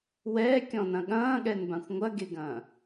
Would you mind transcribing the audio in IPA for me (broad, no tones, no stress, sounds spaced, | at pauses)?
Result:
w ɛː kʲ ɔ̃ n ɐ̃ ɠ ɐ̃ː ɠ ɛ n b ã xʷ ŋʷ ɐ ɡ e ɡ ɐ̃ː